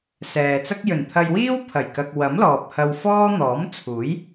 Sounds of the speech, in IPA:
s ɛː˨ t͡s ɐ˥ k̚ j ɵ˨˩ n t̪ʰ ɐ˧ j w iː˥ w pʰ ɐ˨˩ j k ɐ˨ k̚ w ɐ˨˥ m l ɔː˨ p̚ h ɐ˧ w f ɔː˥ n̪ ɔː˨˥ m t͡sʰ uː˨˥ j

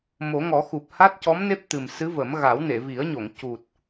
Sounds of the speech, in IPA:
m o˨˩˦ ŋ ɔ˨˩˦ x u˨˩ p̚ h a˦˥ t̚ c ɔ˧˥ m n e˦˥ p̚ t̪ ɨ˨˩ m s ɨ˧˥ v ə˨˩˦ m ɣ a˨˩˦ w n e˨˩˨ v i˨˩˦ ə̯ ɲ o˨˩˨ ŋ c u˨˩ t̚

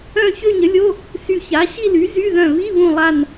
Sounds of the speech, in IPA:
œ̃˥˧ ç ø˥˧ ɲ ə˩˥ lʲ o˧˥˧ | s y˧˩ ç a˩˥ ɕ i˥˧ l y˩˥ z y˧˥˧ ð œ̃˧˩ β i˧˥˧ β ũ˧˩ lˠ a˧˩ n

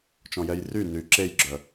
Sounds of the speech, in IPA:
t͡ʃ ɔ̃ j ɛ j r y n y ǁ e j ɡ͡ǁ œ

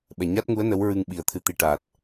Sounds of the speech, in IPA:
ɓ ɛ˨˩ ɲ a˦˥ t̚ ŋ u˧˥ ə̯ n ə˧˥ w ɹ ɨ˧ ŋ ɓ i˨˩ ə̯ t̪ʰ ɨ˨˩ t̪ i˨˩ ʈ aː˨˩ t̚

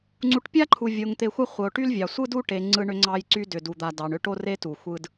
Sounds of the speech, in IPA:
ŋ͡ǀ u˨ ʈ pʲ a˦ ǃʰ u˨ vʲ o˨ ŋ t̪ e˨ xʷ a˦ χʷ ə˨ o̯ ʈ y˦ l vʲ ɑ˨ sʷ ɯ˦ d u˦ ʈ e˨ ŋ͡ǀ ɯ˦ ɳ ʏ˦ ŋ͡ǀ ɑ˦ j ǀ y˦ d ʏ˨ d u˨ d̪ a˨ d ɑ˨ ɳ ʏ˦ ʈ o˦ r e˦ t u˨ xʷ ɯ˦ d

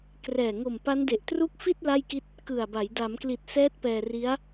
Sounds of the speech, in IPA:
k r ɛː˨˩ ŋ o˨˩ m p a˦˥ n d e˨˩ ʔ t r u˦˥ k̚ f i˥˩ t̚ l a˥˩ j k i˥˩ t̚ | k ɯ˨˩ a̯ b a˩˦ j d a˩˦ m k l i˨˩ t̚ s ɛː˦˥ t̚ p ɛː˧ r i˦˥ a̯

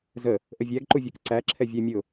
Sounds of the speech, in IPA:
z ə | ʔ ə vʲ æ ɡ ǃ u vʲ ə˞ k ǀ æ ǁʰ ɛ vʲ æ mʲ ʊ

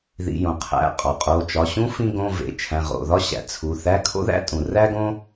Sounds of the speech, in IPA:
ð ḭ˩˧˩ j õ˩ qʰ æ̰˩˧˩ qʼ ɒ˩ qʼ o˩˧˩ t͡ʃ ɒ˩˧˩ ɕ ũ˥ f ĩ˥ ɡ õ˧˥˧ v ḛ˩˧˩ t͡ʃʰ æ̃˩˧˩ ʁ o̰˩˧˩ ð ɒ˥ ɕ æ̰˩ t͡sʰ u˩˧˩ θ æ˧˥˧ kʰ o̰˥ ð æ̰˥ tʼ ũ˩ r æ˥ ɡ õ˥

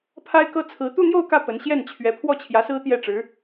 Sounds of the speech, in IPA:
pʰ a˥ ɪ̯ k ɤ˥ t͡sʰ ɹ̩˧˥ t̪ u˥˧ n̪ j o˥˧ ʊ̯ k ä˥˩ p ə˧˥ n ɕ j ɛ˥˩ n t͡ɕʰ ɥ ɛ˧˥ pʰ w ɔ˥˩ t͡ɕʰ j ä˧˥ s ɹ̩˥ t̪ j ɛ˥˩ ʈ͡ʂ ɻ̩˧˥

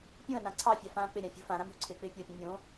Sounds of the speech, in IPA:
pʲ ũ ɐ̯ n ã ǀʰ ɑ fʲ a f ãː k͡p ɪ ɾʲ ã fʲ ṳ f ã ɾ ã m ṳ ǀʰ ɪː k͡p ɪː pʲ o pʲ ũ mʲ õ

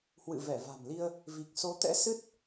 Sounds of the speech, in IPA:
h w ɨ̰˧˨ v ɛ˧˩ v a̤˨˩ m l i˧ ə̯ | v i˨˩ k̚ s o˨˦ t̪ ɛ̰˧˥ s ɨ˦˥ t̚

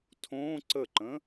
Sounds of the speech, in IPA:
tʰ õ ǀ ə ǃ ə̃

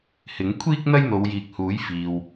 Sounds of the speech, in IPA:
h ɪ˨˥ ŋ kʷʰ iː˥ k̚ n̪ ɐ˥ j n̪ o˨˧ w j iː˨ k̚ h uː˨˥ j f iː˨ w

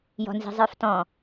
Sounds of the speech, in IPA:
j ɔ̤ n z i̤ zˤ ə˞ f t ɔ̃

